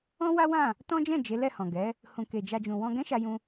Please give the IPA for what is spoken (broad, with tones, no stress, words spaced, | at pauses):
ɔ̃˦ wa˦wã˦˨ | tɔ̃˦d͡ʒɛ̃˦˨ d͡ʒe˨˦lɛ˦˨hɔ̃˨ ɡɛ˨˦ | hũ˨ke˨d͡ʒa˧d͡ʒũ˨ wɔ̃˧ɡɛ̃˦ʃa˧jũ˧